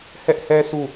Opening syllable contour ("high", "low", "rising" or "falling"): high